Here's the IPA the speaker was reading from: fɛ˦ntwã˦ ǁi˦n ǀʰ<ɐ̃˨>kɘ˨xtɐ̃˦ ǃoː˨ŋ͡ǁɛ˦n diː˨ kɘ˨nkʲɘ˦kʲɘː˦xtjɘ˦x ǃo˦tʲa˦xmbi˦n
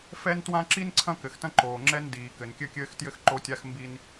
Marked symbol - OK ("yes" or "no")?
no